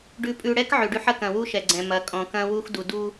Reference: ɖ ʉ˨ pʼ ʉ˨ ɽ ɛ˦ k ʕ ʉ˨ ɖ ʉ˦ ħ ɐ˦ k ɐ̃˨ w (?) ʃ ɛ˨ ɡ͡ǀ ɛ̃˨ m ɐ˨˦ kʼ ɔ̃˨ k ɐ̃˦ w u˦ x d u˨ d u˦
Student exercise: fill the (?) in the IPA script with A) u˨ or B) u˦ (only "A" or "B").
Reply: B